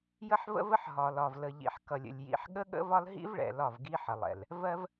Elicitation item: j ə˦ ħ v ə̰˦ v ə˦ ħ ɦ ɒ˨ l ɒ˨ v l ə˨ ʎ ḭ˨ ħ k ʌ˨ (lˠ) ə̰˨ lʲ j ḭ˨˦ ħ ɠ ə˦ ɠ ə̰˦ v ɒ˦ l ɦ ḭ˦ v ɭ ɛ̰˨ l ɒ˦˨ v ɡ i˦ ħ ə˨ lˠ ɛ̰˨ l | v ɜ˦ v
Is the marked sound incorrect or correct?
incorrect